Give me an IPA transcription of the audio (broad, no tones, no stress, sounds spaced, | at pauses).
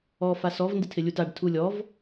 ɔ f a s ɔ v n d ɪ tʰ ɪ lʲ u t a ɖ tʰ u lʲ ɔ v